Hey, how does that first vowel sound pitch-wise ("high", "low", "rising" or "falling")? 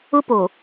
high